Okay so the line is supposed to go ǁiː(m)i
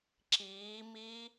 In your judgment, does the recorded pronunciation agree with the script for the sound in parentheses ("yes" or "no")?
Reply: yes